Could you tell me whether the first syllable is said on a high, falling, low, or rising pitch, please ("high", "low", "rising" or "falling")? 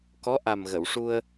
rising